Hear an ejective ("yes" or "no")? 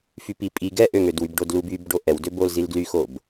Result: yes